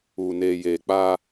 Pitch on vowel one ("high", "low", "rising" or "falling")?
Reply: low